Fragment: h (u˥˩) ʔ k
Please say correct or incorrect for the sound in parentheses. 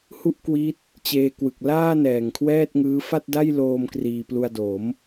correct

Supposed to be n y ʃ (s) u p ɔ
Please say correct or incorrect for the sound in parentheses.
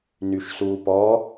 correct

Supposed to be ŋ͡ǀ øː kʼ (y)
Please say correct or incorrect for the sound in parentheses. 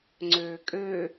incorrect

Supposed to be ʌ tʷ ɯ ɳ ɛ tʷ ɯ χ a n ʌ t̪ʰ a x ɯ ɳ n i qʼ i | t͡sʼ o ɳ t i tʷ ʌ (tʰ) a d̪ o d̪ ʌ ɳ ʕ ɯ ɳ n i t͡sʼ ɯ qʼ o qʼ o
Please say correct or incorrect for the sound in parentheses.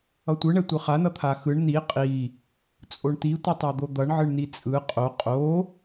incorrect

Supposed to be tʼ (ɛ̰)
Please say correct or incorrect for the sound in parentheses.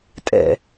correct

